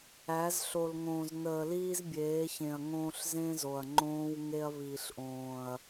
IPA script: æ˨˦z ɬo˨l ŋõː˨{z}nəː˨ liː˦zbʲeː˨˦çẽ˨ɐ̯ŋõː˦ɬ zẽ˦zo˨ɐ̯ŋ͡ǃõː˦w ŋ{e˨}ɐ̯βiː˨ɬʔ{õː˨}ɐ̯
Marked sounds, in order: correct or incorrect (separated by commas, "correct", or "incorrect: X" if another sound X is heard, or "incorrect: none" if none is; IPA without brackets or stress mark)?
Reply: correct, incorrect: e˦, correct